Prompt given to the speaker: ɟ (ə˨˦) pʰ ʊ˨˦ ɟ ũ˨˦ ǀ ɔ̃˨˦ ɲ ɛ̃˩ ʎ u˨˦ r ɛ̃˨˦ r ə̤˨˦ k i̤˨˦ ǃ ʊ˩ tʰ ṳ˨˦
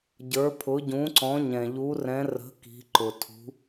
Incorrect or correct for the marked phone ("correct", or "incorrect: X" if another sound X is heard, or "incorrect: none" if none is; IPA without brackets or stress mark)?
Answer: incorrect: ə˞˨˦